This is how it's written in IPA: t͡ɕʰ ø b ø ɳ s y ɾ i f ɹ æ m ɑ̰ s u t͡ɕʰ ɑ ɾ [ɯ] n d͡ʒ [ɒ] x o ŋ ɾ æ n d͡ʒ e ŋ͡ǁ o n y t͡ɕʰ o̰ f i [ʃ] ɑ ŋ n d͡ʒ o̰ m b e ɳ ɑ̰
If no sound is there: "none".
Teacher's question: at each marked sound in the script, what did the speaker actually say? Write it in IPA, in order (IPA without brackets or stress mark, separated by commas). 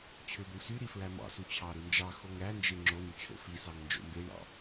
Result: ɯ, ɑ, s